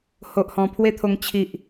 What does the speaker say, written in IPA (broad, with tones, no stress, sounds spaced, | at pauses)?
h o˨ ʔ h ɔ̃˨˩ pʰ w e˦ t̪ʰ o˧ ŋ t͡ɕʰ i˨ ʔ